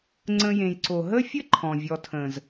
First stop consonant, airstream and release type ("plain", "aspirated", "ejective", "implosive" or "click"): click